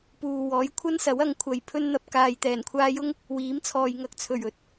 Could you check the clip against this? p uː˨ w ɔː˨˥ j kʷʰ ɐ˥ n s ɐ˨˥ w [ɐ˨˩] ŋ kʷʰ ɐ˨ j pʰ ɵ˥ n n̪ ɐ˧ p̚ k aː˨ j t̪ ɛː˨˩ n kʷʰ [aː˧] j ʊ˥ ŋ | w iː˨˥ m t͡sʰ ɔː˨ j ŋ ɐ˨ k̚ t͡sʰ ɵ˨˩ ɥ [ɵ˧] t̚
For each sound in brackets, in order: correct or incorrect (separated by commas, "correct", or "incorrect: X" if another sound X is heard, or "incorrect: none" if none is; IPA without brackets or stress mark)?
incorrect: ɐ˨˧, correct, incorrect: ɵ˨˥